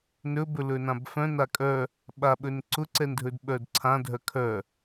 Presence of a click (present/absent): present